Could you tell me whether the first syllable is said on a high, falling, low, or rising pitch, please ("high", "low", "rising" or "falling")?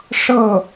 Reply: falling